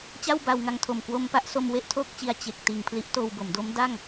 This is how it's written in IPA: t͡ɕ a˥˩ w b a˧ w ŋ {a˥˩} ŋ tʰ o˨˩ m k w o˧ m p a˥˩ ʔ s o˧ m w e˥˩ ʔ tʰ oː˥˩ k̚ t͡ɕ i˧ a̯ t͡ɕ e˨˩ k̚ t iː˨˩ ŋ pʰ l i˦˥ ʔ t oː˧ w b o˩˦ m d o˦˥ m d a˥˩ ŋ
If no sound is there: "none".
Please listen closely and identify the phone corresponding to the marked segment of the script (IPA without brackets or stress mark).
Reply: a˧